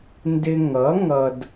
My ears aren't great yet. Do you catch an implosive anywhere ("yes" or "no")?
no